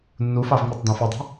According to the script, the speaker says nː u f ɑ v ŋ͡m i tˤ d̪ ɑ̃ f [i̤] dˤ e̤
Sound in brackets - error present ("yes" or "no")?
yes